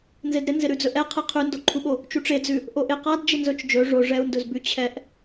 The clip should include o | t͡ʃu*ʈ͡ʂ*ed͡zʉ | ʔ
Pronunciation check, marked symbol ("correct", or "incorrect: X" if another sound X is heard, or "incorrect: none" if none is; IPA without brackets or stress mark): correct